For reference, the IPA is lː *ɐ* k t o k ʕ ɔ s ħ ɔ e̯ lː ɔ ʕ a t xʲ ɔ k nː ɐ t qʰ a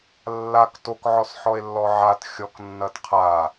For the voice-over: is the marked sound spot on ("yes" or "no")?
no